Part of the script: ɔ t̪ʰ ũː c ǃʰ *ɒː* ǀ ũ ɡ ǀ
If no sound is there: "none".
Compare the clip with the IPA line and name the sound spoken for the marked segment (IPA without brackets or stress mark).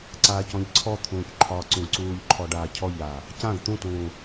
ɒː